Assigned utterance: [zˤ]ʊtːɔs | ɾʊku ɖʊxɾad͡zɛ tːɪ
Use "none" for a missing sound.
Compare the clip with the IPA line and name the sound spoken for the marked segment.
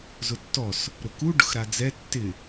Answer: z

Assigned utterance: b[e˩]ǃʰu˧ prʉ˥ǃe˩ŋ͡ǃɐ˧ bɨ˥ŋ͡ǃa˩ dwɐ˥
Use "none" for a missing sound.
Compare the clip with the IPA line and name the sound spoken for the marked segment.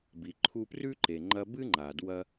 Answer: i˩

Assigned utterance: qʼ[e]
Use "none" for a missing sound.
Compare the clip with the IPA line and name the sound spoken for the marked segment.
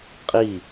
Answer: i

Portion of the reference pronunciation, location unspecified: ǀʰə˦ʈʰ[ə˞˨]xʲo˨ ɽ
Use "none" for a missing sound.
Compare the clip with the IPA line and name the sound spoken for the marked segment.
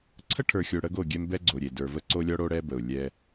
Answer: ə˞˨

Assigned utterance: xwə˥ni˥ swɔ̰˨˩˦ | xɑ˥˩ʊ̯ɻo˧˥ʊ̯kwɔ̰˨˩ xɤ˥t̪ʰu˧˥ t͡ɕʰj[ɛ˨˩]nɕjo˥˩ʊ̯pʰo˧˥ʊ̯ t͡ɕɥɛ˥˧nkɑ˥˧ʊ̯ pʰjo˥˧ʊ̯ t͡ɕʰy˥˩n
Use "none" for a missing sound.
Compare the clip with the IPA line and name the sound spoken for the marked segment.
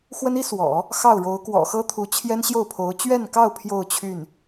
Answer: ɛ˥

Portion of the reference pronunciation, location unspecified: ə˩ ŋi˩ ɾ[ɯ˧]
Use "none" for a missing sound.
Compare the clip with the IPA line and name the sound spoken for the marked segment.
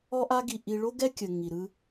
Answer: ɯ˧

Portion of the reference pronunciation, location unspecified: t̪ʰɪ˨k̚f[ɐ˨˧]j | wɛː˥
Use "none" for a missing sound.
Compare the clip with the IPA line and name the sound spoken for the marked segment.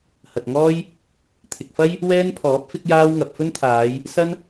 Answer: ɐ˥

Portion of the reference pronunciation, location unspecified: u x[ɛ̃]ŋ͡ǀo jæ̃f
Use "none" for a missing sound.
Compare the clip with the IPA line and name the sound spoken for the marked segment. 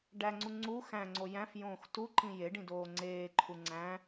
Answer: æ̃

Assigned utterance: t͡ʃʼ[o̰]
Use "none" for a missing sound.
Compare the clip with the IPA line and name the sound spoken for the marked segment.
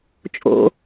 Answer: o̰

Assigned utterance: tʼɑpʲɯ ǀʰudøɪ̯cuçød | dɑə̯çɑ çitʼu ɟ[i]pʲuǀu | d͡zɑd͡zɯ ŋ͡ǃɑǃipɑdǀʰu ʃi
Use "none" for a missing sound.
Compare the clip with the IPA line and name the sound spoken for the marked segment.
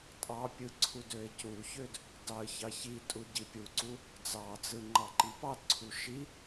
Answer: i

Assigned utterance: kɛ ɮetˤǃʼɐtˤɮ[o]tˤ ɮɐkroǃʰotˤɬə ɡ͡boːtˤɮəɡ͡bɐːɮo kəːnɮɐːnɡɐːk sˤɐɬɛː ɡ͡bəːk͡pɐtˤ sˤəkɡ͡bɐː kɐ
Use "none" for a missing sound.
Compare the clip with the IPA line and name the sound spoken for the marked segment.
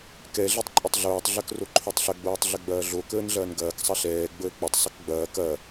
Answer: oː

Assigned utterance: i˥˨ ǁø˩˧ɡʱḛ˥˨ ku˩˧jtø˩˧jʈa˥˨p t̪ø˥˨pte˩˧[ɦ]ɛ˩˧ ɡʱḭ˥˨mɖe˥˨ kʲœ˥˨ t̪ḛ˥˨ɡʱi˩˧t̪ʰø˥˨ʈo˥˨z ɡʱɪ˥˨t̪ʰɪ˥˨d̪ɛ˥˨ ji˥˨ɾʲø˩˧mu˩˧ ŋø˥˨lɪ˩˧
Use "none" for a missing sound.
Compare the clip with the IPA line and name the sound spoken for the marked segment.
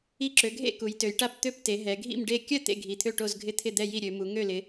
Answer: ɦ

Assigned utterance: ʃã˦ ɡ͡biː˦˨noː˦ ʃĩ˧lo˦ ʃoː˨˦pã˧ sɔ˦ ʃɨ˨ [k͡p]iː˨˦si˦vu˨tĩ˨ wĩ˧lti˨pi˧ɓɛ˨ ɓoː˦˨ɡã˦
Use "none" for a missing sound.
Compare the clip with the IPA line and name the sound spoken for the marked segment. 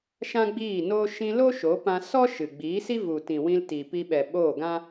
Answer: ɡ͡b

